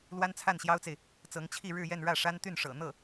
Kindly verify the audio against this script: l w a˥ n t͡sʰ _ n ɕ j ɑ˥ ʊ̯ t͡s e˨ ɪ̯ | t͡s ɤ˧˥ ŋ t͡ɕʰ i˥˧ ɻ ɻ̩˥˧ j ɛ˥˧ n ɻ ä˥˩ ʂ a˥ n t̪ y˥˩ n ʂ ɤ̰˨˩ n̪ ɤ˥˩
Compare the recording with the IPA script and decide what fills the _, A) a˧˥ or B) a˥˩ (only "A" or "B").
B